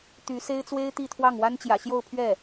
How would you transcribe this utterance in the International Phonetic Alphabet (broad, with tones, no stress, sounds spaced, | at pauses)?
t̪ y˧˥ s e˥ ɪ̯ t͡s w e˥ ɪ̯ t̪ i˥˧ t̪ʰ w ɑ˥˩ ŋ w a˥ n t͡ɕ j ä̰˨˩ ɕ j o˥˧ ʊ̯ pʰ ɥ ɛ˥˩